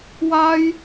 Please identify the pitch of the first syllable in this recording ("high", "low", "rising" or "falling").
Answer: high